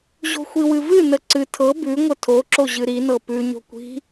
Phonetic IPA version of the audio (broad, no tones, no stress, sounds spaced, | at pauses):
ʑ o̤ xʷ i w ɨ v ɨ n ə ǀ ɨ tʰ ɤ b ʉ ŋʷ ə tʰ o ǁ o ʑ ɨ ɾ i n ɤ p ʉ ɲ o̤ kʷ i̤